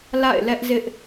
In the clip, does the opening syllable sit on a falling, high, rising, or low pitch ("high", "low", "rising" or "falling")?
falling